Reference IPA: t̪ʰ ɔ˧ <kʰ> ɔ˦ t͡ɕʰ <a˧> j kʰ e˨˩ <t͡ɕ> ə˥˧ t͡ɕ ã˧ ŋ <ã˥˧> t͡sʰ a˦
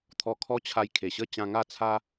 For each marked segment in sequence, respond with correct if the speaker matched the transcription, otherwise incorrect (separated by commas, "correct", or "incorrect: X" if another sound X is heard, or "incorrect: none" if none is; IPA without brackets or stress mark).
correct, correct, incorrect: ɕ, incorrect: a˥˧